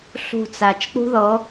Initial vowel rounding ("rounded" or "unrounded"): rounded